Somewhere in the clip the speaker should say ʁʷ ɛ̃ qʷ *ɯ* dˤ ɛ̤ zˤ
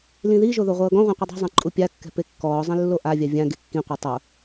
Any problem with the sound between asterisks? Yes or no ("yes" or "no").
no